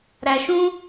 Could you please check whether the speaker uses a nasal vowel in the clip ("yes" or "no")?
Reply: yes